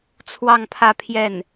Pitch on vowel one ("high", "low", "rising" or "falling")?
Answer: falling